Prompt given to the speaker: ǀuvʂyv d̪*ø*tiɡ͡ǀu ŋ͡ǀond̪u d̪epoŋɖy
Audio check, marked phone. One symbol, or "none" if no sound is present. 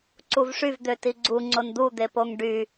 ø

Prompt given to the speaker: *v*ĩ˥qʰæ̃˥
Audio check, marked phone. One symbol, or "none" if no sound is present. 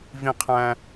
v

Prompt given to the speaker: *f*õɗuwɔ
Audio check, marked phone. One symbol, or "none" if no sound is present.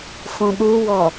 f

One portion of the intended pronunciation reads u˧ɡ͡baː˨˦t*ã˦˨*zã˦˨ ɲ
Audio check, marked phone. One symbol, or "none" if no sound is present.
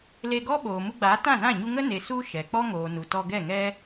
ã˦˨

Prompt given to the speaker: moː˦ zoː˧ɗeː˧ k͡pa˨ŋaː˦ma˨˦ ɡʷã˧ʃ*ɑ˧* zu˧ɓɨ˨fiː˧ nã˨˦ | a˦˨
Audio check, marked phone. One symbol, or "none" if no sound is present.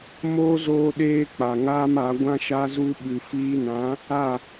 a˧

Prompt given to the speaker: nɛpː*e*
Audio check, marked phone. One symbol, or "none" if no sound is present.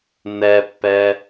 ɛ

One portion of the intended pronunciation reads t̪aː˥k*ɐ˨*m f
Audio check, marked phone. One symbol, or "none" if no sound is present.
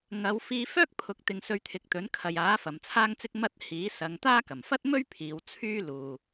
ɐ˨˩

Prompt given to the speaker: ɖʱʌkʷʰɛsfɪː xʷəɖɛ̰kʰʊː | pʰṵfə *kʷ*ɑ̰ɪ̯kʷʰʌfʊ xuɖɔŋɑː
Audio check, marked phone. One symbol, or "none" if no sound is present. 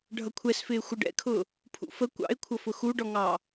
kʷ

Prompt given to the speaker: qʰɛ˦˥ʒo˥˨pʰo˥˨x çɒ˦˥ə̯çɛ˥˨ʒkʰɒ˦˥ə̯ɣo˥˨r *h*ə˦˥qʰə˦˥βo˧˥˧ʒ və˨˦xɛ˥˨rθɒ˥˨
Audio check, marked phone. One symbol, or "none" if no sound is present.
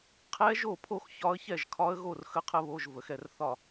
x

